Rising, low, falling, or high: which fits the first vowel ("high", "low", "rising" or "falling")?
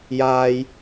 high